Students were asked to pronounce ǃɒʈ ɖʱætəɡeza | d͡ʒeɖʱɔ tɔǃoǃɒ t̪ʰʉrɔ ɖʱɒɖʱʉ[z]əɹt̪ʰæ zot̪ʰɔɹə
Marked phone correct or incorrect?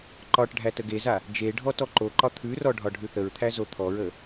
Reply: incorrect